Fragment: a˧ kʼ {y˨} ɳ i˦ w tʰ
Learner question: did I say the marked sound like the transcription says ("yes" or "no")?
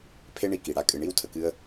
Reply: no